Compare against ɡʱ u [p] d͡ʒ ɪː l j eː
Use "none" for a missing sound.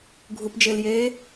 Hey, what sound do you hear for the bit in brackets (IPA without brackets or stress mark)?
p